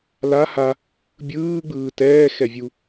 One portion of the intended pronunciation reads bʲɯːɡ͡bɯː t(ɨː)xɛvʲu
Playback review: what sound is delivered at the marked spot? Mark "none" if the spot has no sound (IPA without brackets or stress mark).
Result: ɛː